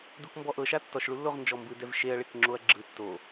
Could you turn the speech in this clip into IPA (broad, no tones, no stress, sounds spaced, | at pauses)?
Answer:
d u k m b ɔ ʔ ɤ ʃ a tː ɔ ʃ ɭ u lː o ʁ n d͡ʒ ɔ m b ɯ d ɛ v ʃ e ɐ̯ ɭ e k ŋ͡ǁ o ɐ̯ ɡ͡ǁ ɯ tː o